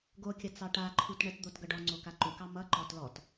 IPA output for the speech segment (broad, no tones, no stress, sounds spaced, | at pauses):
ɡ o kʲ ʌ t͡s ɑ ʈ a ǃʰ u t ɳ ə t d̪ o t ɡ ʌ ɖ ɔ ŋ͡ǀ o k a ǃ u k ɑ m ʌ ǃ ɔ t l ɔ t